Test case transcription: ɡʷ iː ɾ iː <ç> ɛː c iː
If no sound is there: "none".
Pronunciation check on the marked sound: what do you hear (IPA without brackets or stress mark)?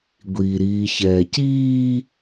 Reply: ç